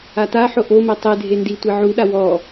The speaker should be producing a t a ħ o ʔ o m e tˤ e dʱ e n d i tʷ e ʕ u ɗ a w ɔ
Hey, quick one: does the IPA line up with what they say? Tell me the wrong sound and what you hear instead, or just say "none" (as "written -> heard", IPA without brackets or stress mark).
none